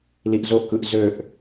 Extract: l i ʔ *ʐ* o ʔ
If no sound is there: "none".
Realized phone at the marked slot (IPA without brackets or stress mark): z